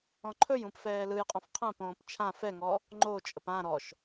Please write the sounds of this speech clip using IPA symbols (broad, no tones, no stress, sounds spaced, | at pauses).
ɔ̃ ǃʰ ɵ j ũ p f ɛː l ɯ j qʼ ɔ̃ f qʰ ã p õː p t͡ʃʰ ã f ɛ ŋ ɔ | ŋ͡ǃ o t͡ʃʼ ə p ã ɾ ɔ ʃ